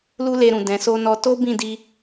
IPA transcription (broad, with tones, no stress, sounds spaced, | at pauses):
l u˦ l e˧ ɾ ũ˨ d ɛ̃˨ s o˧ n ɔ˧ t o˦ b ĩ˦˨ d i˧